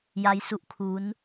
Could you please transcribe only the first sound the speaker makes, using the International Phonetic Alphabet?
j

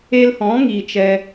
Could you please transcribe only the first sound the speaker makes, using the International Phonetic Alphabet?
e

